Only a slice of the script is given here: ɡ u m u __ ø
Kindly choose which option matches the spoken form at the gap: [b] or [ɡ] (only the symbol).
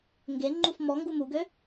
ɡ